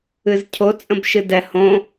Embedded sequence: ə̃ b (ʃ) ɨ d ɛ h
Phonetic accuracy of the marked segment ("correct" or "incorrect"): correct